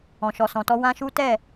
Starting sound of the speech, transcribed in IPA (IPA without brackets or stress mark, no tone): ɔ̃